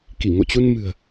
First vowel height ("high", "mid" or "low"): high